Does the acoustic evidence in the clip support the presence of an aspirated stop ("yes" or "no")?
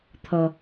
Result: yes